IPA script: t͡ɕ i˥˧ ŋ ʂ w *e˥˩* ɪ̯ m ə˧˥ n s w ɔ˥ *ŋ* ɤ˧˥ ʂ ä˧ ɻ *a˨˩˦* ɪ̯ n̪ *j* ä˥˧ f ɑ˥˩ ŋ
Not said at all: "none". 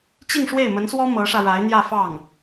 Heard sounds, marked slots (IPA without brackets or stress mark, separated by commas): e˥˩, m, a˧˥, j